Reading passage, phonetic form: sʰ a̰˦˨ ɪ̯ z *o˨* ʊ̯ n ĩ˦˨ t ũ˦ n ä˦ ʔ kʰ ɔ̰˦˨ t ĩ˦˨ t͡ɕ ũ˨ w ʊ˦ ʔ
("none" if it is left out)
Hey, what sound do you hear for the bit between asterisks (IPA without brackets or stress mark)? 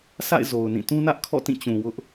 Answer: o˨